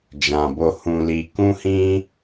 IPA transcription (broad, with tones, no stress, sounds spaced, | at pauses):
d͡ʒ ã˨ b o˨ h ũ˨ l i˨ k ũ˧ h ĩ˧